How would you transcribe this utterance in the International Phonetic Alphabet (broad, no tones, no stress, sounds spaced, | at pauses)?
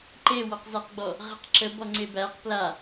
ǃ e w ɔ q z a q ɡ͡b ɔ | ʁ ə q ǁ ə b ɔ ŋ͡ǀ e b æ q p l a